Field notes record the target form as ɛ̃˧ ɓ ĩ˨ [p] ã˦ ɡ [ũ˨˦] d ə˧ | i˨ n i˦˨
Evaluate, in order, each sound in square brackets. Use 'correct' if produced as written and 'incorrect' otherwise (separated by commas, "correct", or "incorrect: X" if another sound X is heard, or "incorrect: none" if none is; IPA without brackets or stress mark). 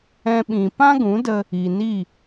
correct, correct